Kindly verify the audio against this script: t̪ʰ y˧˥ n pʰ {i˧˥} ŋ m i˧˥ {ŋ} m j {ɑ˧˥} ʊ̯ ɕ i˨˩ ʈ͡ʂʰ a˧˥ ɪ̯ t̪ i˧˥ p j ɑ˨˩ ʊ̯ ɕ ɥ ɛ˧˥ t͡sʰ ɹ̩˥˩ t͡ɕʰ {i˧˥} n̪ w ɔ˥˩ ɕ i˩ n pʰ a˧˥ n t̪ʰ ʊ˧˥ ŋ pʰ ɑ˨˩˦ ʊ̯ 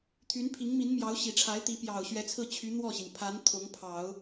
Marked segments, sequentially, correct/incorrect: correct, incorrect: n, correct, incorrect: y˧˥

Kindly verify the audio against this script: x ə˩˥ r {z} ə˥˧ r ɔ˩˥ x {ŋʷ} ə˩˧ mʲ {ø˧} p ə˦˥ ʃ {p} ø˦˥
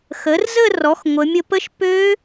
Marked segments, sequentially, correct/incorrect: correct, correct, incorrect: ə˧, correct

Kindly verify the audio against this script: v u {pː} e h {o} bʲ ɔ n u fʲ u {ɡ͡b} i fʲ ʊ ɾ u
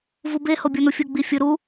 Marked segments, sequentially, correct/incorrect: incorrect: b, correct, correct

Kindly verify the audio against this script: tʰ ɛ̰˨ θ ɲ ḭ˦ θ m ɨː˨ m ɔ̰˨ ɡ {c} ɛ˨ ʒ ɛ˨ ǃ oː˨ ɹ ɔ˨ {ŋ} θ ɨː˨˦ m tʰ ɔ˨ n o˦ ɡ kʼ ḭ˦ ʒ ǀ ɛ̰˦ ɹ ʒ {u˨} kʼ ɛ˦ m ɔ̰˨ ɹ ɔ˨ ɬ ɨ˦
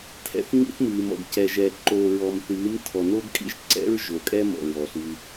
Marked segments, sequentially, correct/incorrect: correct, incorrect: m, incorrect: o˨

